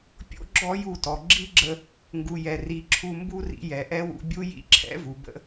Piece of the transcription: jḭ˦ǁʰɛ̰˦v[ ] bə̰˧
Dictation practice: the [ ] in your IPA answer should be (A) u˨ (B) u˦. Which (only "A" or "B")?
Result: A